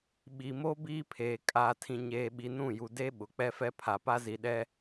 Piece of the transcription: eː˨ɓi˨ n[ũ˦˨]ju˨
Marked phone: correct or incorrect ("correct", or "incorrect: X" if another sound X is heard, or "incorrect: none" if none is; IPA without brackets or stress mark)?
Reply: correct